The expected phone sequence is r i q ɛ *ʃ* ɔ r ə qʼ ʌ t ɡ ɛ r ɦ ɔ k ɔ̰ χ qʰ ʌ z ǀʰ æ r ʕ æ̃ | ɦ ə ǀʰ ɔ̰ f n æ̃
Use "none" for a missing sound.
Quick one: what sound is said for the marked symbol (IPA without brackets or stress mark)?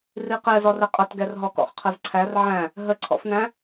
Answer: z